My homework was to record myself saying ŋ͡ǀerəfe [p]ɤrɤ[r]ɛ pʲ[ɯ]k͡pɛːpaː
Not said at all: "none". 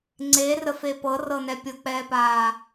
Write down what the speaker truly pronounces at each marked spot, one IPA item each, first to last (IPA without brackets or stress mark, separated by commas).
p, n, ɤ